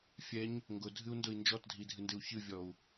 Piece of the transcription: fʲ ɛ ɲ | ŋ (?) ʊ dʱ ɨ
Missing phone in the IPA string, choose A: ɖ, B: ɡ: B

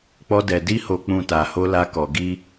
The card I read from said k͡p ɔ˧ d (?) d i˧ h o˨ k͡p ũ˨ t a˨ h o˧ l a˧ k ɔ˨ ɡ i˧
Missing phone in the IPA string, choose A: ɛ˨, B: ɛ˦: A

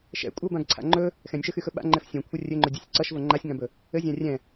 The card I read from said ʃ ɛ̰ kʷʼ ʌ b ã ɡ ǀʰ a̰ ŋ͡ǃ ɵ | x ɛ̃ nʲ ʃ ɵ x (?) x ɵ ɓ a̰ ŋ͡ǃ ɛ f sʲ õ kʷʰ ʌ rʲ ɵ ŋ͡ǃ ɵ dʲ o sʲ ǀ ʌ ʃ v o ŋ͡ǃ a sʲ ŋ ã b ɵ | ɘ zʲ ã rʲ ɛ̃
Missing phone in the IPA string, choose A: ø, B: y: B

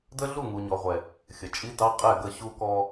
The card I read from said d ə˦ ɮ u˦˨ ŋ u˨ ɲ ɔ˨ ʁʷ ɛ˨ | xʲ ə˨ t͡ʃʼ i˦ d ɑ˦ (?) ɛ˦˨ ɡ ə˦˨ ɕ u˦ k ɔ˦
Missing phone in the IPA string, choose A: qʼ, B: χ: A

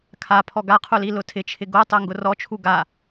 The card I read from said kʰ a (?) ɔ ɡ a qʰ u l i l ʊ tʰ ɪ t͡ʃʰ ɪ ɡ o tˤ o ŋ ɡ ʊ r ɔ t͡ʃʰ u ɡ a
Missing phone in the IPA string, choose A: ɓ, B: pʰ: B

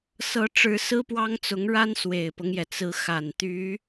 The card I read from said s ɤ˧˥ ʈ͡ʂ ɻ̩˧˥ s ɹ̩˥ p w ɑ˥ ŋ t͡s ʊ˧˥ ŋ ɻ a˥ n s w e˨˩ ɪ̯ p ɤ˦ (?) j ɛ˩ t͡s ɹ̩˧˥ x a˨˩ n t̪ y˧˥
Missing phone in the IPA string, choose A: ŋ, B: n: A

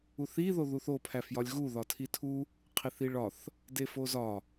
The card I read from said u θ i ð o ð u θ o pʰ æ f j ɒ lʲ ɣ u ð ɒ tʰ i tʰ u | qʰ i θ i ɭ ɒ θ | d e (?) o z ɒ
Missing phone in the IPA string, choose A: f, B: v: A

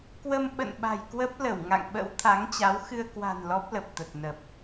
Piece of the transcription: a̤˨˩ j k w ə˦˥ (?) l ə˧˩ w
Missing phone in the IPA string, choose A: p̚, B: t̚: A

